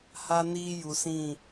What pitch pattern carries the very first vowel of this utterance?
high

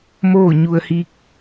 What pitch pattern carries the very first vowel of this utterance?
falling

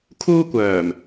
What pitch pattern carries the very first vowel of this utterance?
high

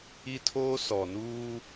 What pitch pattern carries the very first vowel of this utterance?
high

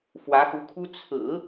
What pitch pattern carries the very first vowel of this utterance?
rising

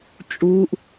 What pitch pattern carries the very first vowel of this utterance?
high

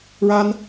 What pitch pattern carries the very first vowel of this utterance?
high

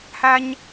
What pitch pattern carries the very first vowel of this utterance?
high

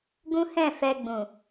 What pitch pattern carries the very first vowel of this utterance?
high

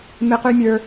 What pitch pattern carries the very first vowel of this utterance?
high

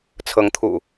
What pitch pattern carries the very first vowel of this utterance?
rising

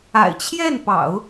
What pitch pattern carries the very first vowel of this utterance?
low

